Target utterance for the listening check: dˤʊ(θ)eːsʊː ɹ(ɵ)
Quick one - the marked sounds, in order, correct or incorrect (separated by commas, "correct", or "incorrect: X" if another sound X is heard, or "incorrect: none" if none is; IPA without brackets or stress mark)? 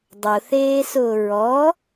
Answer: correct, incorrect: ɔ